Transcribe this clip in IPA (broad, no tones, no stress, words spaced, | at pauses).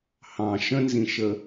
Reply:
hɑ̃ ʃə̃nzĩʃə